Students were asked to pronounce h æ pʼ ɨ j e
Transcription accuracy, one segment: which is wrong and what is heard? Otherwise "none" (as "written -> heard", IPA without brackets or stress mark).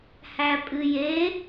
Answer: none